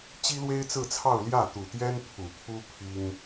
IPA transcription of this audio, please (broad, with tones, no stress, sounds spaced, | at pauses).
t͡ɕ i˥ l w e˥ ɪ̯ t͡s ɹ̩˥˧ t͡sʰ ɑ˥˧ ʊ̯ l j ä˥˩ t̪ u˨˩ t̪ j ɛ˥ n pʰ u˨˩ pʰ u˥ pʰ i˥ ŋ